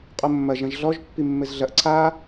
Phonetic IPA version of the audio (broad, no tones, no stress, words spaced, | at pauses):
qʼomːɐ ʒɐ̃ʒɮɔʒ pːimːɘzɮɐʔ ǀʰa